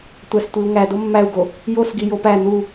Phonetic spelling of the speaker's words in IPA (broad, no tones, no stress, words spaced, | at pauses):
tʷæstʷiu̯ŋæ domːæu̯ɡo | josɡi jopæ n̪u